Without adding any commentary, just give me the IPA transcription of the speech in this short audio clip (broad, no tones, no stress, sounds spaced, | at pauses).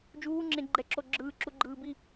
d͡ʒ uː ŋ͡ǁ ẽ ɡ͡ǃ ɛ ǁ o ɡ͡ǁ ɯː ǁ u ɡ͡ǃ ɯː b i